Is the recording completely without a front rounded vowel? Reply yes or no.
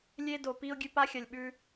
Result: yes